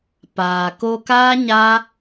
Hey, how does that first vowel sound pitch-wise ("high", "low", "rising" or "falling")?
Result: low